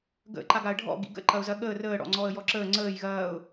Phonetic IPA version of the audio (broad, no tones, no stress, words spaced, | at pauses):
ɡə̰ ǃaɡaə̯ɖʱɔ̰ ɡḭɡə̰ ǃɐʊ̯zɐɠəː rəː ɽɔ̰ŋ͡ǀɔə̯jɔǁəː ŋ͡ǀəːj ɣɐːʊ̯